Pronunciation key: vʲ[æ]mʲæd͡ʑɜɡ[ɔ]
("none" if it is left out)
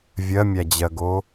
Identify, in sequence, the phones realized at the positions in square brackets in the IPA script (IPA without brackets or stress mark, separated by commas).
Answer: ɜ, o